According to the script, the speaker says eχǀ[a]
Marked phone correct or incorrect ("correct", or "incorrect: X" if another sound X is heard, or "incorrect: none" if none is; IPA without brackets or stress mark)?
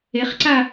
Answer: correct